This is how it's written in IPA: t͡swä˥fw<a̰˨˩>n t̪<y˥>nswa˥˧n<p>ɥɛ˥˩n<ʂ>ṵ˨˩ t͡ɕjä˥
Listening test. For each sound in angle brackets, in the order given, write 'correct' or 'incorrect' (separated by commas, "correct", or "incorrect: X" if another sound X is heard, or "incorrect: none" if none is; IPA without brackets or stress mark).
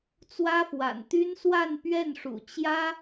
correct, correct, correct, correct